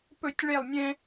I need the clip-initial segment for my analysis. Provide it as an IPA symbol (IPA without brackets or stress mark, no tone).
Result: p